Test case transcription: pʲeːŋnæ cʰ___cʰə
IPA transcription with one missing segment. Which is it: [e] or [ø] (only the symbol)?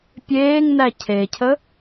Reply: e